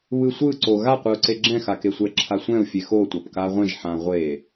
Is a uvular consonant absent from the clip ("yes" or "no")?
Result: no